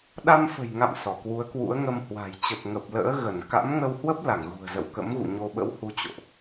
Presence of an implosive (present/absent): present